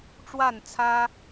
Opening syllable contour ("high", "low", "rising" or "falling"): falling